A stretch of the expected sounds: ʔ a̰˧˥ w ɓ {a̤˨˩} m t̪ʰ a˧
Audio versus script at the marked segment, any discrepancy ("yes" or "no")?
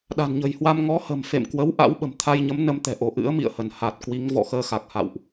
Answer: yes